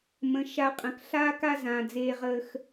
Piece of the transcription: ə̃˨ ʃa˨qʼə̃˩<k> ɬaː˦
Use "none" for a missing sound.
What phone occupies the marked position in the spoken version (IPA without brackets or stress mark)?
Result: k